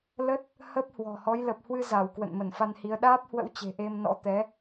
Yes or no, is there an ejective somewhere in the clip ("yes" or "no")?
no